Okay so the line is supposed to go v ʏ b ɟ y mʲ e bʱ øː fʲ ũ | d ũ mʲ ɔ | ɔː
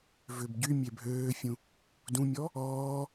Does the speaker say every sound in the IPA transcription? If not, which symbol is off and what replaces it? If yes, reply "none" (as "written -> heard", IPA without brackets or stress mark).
none